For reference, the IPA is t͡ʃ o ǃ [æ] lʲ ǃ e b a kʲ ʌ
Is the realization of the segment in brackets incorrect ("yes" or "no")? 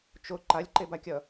yes